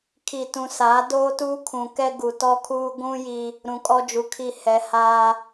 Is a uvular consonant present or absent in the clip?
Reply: absent